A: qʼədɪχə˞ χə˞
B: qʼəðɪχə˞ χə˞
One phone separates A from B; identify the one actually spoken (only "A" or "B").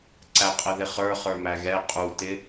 B